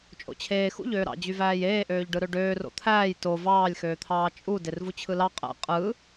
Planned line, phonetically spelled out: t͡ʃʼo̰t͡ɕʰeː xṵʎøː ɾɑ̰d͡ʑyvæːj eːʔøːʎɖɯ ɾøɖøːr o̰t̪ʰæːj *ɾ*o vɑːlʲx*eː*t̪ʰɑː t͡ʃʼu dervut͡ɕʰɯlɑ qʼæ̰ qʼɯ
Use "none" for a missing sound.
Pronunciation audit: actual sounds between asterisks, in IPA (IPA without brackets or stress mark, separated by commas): t, øː